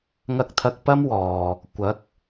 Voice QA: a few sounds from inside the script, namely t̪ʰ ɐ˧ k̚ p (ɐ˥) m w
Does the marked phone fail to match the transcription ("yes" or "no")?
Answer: no